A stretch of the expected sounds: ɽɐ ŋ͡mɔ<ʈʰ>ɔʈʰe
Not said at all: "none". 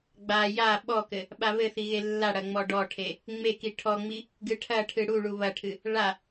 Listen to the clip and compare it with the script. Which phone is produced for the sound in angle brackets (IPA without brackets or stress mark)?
ɖ